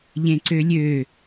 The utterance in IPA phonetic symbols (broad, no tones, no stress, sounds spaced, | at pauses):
ʎ ẽ ǀ ø lʲ ø